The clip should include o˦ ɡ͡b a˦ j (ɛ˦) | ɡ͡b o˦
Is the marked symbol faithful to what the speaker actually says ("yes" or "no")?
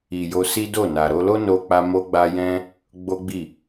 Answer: no